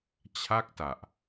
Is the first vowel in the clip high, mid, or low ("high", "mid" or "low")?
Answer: low